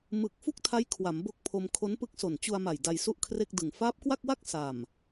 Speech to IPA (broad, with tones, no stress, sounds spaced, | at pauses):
m ɯ˨˩ k̚ f u˥˩ k̚ tʰ a˦˥ j kʰ w a˩˦ m b o˦˥ k̚ pʰ o˧ m kʰ o˦˥ n p ɯ˦˥ k̚ s o˨˩ n t͡ɕ u˧ a̯ m a˨˩ j d a˧ j s u˥˩ ʔ kʰ r e˥˩ k̚ d ɯ˨˩ ŋ f aː˦˥ p̚ k w a˥˩ k̚ w a˥˩ k̚ s a˨˩ m